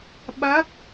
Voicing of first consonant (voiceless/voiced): voiced